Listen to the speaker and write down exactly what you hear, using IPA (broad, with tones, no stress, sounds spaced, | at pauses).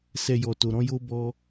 s ɛ˨ j ɔ˨ t o˨ ɾ ɔ̃˧ j o˧ b ɔ˧